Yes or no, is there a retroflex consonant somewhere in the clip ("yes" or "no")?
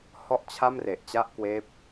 no